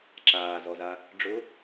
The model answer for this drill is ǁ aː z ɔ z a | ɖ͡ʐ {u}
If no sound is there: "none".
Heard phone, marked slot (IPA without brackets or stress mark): ʊ